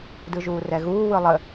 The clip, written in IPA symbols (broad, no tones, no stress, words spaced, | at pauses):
dɯʒuːrɛɣuː wɯlˠə